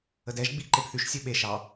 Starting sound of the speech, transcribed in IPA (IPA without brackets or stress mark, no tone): ə